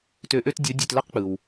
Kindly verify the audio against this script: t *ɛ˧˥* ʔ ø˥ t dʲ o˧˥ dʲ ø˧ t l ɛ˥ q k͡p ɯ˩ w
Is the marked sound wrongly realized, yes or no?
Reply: yes